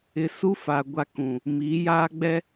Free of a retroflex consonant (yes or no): yes